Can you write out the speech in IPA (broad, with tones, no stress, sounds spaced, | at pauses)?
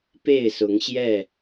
p e˥˨ ɪ̯ s ʊ˨˦ ŋ ɕ j ɛ˥˨